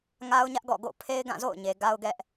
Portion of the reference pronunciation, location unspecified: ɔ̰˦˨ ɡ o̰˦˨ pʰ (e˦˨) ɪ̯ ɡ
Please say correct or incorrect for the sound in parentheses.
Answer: incorrect